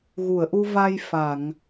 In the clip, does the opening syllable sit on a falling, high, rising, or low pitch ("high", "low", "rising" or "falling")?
low